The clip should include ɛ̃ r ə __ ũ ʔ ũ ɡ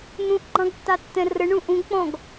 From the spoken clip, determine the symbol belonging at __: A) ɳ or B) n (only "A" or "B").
A